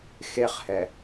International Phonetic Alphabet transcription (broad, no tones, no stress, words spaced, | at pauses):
xeχhɛ